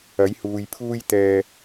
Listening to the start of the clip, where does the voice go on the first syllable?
rising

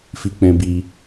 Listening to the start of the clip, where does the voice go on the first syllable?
high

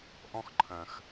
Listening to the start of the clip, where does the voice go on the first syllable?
high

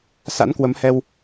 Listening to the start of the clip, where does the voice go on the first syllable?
rising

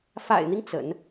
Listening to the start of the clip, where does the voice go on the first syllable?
low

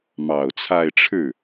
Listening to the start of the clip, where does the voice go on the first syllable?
low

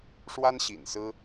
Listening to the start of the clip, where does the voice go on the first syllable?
high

